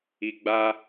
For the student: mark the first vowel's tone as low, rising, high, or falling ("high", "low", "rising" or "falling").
low